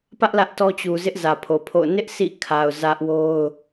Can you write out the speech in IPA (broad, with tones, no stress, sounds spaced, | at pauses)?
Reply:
p ä˦ ʔ l ä˦ ʔ t ɔ˦ t͡ɕ u˨ z ɪ˦ ʔ z ä˨ pʰ o˨ pʰ o̰˦˨ ʊ̯ n ɪ˦ ʔ s ḭ˦˨ kʰ a˨ ʊ̯ z ä˦ ʔ w o˦ ʊ̯